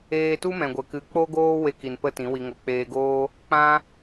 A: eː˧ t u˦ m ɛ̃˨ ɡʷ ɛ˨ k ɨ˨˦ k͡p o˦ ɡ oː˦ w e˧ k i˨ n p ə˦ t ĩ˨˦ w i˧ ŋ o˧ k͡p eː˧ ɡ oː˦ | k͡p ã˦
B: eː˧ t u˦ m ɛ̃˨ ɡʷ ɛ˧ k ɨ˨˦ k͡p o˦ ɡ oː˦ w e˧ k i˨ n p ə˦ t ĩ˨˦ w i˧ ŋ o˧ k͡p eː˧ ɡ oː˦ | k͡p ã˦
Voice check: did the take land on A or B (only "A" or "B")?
A